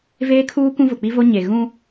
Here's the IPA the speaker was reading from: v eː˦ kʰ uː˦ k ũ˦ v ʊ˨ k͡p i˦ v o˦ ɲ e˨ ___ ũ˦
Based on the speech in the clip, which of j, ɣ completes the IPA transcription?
ɣ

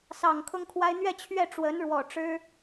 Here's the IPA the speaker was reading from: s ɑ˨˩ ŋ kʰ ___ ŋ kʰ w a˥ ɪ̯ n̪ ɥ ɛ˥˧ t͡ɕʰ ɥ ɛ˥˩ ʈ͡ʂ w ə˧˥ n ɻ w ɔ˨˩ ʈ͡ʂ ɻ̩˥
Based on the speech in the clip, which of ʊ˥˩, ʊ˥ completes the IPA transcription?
ʊ˥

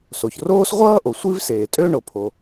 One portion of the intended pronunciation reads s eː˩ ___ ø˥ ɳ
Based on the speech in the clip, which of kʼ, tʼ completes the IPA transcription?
tʼ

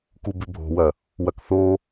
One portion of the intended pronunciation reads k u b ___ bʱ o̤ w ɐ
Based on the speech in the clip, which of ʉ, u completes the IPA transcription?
ʉ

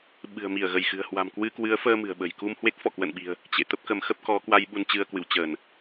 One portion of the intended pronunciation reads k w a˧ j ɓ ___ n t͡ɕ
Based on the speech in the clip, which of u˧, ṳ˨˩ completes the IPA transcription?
u˧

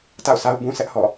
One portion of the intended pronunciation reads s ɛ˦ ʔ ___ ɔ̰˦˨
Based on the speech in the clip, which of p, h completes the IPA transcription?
h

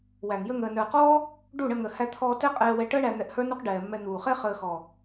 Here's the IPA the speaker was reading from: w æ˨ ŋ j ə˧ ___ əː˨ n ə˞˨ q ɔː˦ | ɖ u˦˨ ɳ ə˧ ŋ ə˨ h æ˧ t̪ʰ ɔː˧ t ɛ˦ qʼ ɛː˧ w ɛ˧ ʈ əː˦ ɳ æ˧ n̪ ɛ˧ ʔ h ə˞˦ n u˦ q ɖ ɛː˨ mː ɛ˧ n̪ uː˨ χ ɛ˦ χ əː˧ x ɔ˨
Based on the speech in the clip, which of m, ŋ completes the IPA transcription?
ŋ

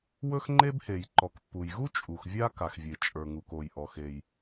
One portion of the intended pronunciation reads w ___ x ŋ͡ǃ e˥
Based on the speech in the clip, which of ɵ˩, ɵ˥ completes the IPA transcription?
ɵ˥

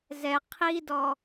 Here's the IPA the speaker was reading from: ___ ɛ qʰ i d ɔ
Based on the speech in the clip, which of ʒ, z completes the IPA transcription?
z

